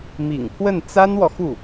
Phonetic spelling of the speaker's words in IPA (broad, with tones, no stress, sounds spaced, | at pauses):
m ḭ˨˩ ŋ pʰ w ə˥˩ n t͡s a˥ n w ɔ˨ x u˥˩